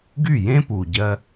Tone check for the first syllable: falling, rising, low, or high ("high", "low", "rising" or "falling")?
falling